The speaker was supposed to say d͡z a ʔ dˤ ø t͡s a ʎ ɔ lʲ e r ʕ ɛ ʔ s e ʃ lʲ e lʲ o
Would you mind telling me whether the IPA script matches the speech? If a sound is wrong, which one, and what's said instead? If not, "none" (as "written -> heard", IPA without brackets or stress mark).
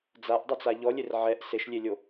ø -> y